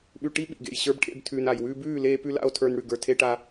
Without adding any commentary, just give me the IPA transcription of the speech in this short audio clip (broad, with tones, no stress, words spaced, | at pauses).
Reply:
ɓʉ˧ʈi˦ɓḭ˨ɡḛ˨j ɕə˞˧bʈʰḛ˧b tʰʉː˨na˨j wʉː˧ bʉː˦˨ leː˧pʉ˧ la̰˦o̯tʰə˞˧n ɽʉ˨ɡə˞˨tʰe˧ʈa˧